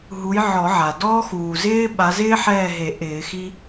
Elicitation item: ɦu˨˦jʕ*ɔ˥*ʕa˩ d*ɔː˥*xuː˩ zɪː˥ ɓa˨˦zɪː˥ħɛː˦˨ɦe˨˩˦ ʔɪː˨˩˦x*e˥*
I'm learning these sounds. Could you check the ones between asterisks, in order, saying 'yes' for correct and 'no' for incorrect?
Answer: no, yes, no

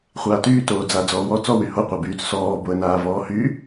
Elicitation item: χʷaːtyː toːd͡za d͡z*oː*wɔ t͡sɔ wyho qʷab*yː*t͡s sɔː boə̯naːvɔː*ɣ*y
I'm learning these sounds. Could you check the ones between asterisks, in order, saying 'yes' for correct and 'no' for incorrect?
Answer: no, yes, no

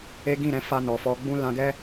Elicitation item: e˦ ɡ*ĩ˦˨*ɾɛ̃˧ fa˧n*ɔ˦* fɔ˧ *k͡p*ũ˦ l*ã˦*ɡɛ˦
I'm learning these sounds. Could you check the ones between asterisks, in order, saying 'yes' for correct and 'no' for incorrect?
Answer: yes, no, no, no

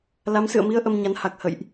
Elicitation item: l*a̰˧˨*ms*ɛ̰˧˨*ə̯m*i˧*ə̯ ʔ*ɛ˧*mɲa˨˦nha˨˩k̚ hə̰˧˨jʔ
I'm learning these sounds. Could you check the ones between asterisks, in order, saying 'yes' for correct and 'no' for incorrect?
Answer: no, no, yes, no

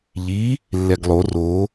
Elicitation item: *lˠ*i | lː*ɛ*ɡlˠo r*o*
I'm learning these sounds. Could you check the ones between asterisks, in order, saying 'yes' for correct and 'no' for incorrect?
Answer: no, yes, yes

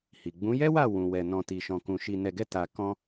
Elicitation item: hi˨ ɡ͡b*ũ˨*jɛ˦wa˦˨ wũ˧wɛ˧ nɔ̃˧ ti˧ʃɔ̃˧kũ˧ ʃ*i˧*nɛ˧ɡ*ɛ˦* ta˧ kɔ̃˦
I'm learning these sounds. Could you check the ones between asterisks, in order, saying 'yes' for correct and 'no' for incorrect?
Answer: no, yes, yes

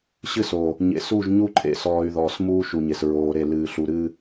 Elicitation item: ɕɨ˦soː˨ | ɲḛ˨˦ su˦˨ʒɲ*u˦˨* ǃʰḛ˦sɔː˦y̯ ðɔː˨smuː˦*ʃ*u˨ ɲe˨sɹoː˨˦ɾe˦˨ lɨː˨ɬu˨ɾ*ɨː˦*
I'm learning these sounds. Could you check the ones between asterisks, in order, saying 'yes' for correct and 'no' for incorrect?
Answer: no, yes, yes

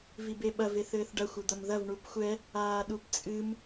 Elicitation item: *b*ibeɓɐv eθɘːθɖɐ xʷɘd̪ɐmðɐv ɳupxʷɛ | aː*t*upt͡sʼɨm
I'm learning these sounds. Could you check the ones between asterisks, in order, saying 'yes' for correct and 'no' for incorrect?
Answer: no, no

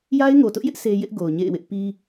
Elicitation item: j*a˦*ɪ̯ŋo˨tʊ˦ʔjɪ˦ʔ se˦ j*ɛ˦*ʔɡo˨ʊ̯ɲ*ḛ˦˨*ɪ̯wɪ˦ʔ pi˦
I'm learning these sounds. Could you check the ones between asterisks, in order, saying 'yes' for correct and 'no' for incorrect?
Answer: yes, no, yes

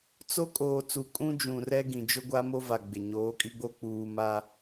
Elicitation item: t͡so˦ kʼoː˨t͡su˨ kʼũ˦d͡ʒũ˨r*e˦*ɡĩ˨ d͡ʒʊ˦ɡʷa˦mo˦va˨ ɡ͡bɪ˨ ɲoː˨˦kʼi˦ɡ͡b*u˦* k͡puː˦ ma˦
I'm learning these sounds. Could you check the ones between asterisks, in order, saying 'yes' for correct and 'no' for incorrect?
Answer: no, no

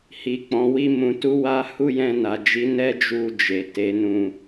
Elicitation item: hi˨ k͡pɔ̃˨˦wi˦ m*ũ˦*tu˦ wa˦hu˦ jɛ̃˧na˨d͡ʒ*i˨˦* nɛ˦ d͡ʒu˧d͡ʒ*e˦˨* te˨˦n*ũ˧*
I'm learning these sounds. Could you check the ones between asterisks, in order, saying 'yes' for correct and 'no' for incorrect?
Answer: no, yes, no, yes

